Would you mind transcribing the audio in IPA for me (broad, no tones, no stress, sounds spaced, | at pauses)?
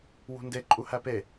w ṳ n d e ǃʼ u h æ p e